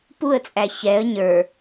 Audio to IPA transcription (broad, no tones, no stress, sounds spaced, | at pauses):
p u ə̯ t͡sʼ æ ç ɛ ə̯ ɲ ə˞